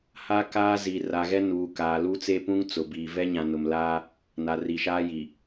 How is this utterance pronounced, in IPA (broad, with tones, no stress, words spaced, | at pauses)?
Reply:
ha˦ kaː˦zi˨ ra˨ɣɛ˦ nuː˨kaː˨ lu˦t͡se˦pũ˦ŋ t͡sʊ˨biː˨ vɛ˦ɲã˨nʊ˨m laː˦ | na˨ri˨ʃaː˦ji˨